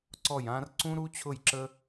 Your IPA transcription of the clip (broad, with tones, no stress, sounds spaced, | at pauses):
ǀ ɔ˦˨ j ã˦ r ǀ ũ˦ ɾ u˦ t͡ɕʰ ʊ˦˨ j ǁ ə˦